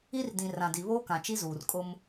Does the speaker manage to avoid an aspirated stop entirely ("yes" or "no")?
yes